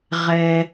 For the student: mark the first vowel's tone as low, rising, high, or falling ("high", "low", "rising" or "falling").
high